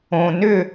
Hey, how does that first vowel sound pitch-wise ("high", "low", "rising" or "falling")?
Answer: low